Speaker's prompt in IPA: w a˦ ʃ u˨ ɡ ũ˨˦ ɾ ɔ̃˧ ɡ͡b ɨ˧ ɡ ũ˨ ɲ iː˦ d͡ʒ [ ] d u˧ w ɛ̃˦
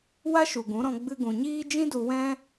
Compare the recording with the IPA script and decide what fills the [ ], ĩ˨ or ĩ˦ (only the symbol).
ĩ˦